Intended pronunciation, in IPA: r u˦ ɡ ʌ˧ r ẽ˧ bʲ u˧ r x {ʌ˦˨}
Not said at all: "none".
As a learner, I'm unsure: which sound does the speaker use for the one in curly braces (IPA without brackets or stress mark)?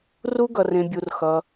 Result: ʌ˧